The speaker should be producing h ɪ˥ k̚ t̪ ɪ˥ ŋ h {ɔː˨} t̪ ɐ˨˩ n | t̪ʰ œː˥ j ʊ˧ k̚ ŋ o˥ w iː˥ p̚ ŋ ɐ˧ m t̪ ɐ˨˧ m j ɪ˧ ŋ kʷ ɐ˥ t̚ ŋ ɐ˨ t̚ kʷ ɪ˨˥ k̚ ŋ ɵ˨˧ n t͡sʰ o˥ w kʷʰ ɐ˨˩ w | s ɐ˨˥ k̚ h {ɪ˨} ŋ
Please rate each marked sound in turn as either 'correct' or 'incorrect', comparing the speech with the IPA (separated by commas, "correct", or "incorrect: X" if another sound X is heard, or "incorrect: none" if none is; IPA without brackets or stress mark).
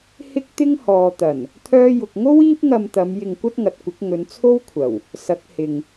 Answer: correct, correct